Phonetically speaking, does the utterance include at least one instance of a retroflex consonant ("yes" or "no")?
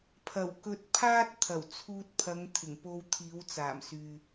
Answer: no